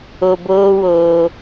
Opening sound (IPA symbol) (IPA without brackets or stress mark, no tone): o